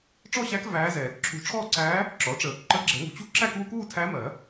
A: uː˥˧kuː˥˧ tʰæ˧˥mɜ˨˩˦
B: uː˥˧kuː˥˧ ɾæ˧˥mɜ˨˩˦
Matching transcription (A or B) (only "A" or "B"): A